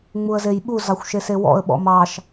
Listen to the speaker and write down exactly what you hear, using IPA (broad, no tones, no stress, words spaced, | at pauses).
ŋ͡muə̯zejɓu zɑxʷʃesewɔ̰ə̯ ɓɔ̰mɑʃ